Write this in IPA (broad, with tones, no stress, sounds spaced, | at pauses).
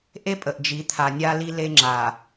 ʔ e˦ pʼ ə˨ ʔ d͡ʒ i˨˦ t̪ʰ a˨ nʲ a˦ l i˦ l e˦ ŋ͡ǁ a˨